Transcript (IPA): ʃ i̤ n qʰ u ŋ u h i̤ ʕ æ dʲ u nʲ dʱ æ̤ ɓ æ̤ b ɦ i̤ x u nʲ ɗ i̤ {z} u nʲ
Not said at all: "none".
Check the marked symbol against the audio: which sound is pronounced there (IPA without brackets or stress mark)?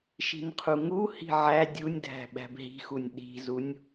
z